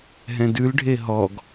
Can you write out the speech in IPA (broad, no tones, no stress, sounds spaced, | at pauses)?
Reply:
ɦ ɛ̃ d ʉ l ɖʱ e ɦ ɔ ɡ